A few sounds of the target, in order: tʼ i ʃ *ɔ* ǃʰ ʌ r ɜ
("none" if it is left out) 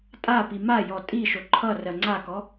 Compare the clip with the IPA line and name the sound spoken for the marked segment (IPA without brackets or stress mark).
o